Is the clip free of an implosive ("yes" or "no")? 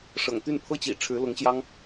yes